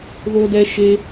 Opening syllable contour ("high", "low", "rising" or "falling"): high